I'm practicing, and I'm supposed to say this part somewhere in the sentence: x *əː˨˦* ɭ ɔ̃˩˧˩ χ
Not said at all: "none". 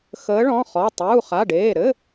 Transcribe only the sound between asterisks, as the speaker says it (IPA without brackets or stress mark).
əː˨˦